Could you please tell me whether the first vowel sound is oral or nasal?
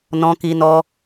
nasal